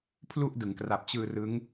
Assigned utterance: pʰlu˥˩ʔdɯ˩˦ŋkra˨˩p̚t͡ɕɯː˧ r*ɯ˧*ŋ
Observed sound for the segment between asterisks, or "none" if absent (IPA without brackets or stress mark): ɯ˦˥